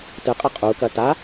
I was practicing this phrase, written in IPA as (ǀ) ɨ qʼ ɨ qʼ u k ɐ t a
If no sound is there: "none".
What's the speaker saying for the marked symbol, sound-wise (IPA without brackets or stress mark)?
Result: t